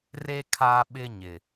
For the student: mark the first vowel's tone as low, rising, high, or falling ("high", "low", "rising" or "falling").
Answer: high